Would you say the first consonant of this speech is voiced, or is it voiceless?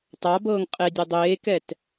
voiceless